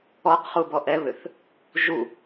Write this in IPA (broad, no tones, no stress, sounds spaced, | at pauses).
ɔ q χ u b ɔ ʔ ɛ β ʏ θ | ʒ u